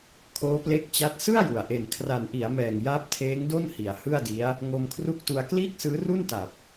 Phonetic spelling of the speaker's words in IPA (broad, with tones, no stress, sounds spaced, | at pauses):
kʰ oː˦˥ p l e˦˥ k̚ t͡ɕ a˦˥ t̚ s ɯ˥˩ a̯ j u˨˩ a̯ ʔ e˨˩ n kʰ r a˨˩ n ʔ i˩˦ a̯ m ɛː˨˩ ŋ j aː˦˥ p̚ tʰ eː˦˥ ŋ d o˥˩ n h i˨˩ a̯ h ɯ˥˩ a̯ d i˦˥ a̯ | ŋ o˧ m kʰ r u˥˩ k̚ t u˧ a̯ k l iː˥˩ k̚ s ɯː˦˥ r u˥˩ n t a˨˩ p̚